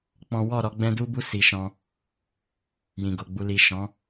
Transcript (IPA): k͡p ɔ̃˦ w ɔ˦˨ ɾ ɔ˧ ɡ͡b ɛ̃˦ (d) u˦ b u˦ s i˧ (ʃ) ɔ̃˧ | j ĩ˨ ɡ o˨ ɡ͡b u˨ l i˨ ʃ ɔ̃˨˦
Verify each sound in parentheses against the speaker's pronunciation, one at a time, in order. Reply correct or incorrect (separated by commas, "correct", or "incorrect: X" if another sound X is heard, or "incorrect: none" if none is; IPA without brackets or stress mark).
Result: correct, correct